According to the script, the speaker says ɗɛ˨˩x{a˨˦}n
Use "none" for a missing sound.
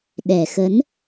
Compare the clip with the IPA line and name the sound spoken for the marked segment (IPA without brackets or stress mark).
ə˨˦